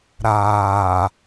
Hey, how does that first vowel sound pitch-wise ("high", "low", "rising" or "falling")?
low